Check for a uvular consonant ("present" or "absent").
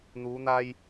absent